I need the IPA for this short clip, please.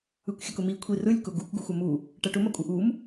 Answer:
ɯ kʷ xʲ ɐ k ʊ m i kʷʰ i r ɯ lʲ k ʊ ɡ u k ɡ u xʷ ɐ m u | ʈ ɐ ʈ ʊ m ɐ kʷʼ ɯ ʔ u m

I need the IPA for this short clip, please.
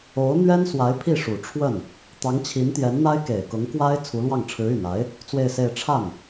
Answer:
o˧˥ ʊ̯ n̪ ɥ ɛ˥ n s w a˧˥ ɪ̯ pʰ i˥˩ ʂ u˨˩ ʈ͡ʂʰ w ə˥˩ n | t̪ ɑ˧˥ ŋ t͡ɕʰ i˧˥ n t̪ j ɛ˧˥ n n̪ a˥ ɪ̯ k e˨˩ ɪ̯ k ʊ˧˥ ŋ k w a˥ ɪ̯ t͡sʰ u˧˥ l w ɑ˥˩ ŋ ʈ͡ʂʰ ɻ̩˧˥ y˨˩ n a˧˥ ɪ̯ | t͡s w e˥˧ ɪ̯ s e˥˧ ɪ̯ ʈ͡ʂʰ a˥˩ n

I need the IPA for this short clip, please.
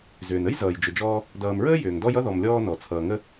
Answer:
z ʏː˩ n ə˥ j z ʌː˩ j d͡ʒ ʏ˨ d͡ʒ ɔː˦ | d ʌː˨ m ɹ əː˥ j ʏː˩ ŋ d ɔ˦ j ʌ˥ ð ɔ˨ m lʲ ɔː˦ n ɔ˩ t͡sʰ ʌː˩ ŋ ə˦

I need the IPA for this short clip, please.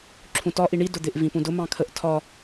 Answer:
ǁʰ ũ t ɒ ʔ i ɳ i d ʊ d̪ ɪ ʔ v ĩ p ũ d ʊ m ɑ̃ kʰ ə ʔ tʰ ɒ

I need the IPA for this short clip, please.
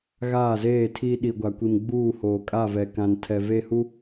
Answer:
ɣ aː˦˨ z eː˦˨ tʰ iː˦ ɗ i˨ ɡʷ a˨ kʷ i˨ m ɡ͡b uː˦˨ h oː˨ kʼ a˦˨ v ɛ˨ k ã˨ n tʰ ɛ˨ v e˦˨ h u˦

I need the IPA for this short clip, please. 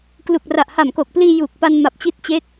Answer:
k l u˨˩ k̚ r a˨˩ ʔ h a˨˩ m k o˨˩ k̚ p l iː˧ j uː˨˩ k̚ p a˧ n m a˨˩ p̚ t͡ɕ i˦˥ t̚ t͡ɕ eː˦˥ k̚

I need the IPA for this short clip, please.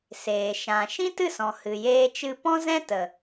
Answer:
s eː˨ ʃ ã˨ ʃ ĩ˦ t ɨ˦˨ s ɔ̃˨ h ɨ˨ j eː˦ t͡ʃ ɨ˦ p ɔ̃˦ z ɛ̃˦ t ə˨

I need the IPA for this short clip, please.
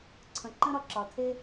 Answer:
ǀʰ ə̃˨ ǃ ə̃˦ ɾ ɒ˧ ǁ ɒ˨ tʰ e˦

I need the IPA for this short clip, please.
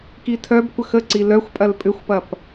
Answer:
k i tʰ œ b kʷ ə x ə ǀ i l œ xʷ pʼ ɐ l pʼ ʏ xʷ p ɐ p

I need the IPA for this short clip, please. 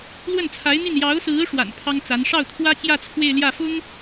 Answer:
l w ə˥˩ n t͡sʰ a˧˥ ɪ̯ n̪ i˥˩ n j ɑ˧˥ ʊ̯ s ɹ̩˧˥ ʂ w a̰˨˩ n pʰ ɑ˥ ŋ t͡s a˧˥ n ʂ ɑ˥˩ ʊ̯ t̪ʰ w ä˥ t͡ɕ j ä˥˧ t͡sʰ w e˥˧ ɪ̯ l j ä˥˩ f ʊ˥ ŋ

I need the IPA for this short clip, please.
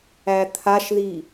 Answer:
æ t̪ʰ a ʃ ð i

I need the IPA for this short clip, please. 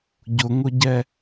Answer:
ɟ ʊ ŋ ʊ ɟ ɛ

